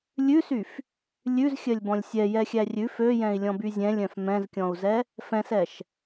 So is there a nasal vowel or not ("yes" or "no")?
yes